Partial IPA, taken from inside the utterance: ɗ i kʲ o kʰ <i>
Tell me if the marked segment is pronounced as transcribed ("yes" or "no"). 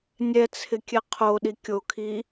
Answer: yes